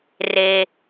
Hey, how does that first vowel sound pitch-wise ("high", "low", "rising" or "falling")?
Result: low